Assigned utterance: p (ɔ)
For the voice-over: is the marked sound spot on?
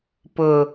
no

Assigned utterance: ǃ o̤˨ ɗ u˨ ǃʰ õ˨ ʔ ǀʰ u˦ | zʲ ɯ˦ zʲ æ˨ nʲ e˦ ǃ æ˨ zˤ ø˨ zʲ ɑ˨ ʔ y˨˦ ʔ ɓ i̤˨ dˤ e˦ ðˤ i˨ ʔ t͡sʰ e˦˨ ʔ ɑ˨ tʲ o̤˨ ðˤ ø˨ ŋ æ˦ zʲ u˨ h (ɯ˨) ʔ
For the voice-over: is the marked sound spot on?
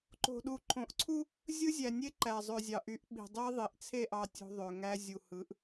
no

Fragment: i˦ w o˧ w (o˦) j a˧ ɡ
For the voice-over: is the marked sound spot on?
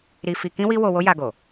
yes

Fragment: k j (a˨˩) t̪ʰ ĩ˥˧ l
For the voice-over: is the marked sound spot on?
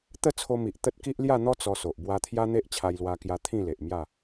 no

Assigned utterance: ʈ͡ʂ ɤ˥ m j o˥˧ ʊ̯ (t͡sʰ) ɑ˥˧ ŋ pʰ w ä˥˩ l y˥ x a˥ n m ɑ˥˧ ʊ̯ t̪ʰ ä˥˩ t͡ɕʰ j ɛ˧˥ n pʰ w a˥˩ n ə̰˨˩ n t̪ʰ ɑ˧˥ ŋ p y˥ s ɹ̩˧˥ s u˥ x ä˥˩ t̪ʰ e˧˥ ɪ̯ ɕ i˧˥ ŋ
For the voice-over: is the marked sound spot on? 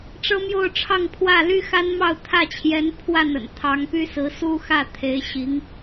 no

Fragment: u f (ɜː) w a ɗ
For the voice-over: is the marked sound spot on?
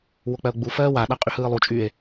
yes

